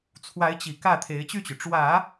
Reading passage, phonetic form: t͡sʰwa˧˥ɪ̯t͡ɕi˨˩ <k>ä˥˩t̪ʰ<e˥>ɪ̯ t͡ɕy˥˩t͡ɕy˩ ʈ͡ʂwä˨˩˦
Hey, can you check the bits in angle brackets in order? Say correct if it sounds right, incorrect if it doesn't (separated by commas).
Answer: correct, incorrect